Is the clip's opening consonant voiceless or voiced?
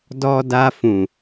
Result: voiced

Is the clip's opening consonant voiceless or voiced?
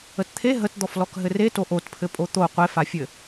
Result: voiceless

